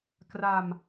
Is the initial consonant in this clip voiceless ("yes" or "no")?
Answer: yes